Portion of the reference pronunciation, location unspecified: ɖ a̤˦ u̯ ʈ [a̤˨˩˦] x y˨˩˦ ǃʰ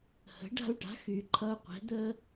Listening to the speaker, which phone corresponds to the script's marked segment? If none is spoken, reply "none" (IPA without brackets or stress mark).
a̤˩˥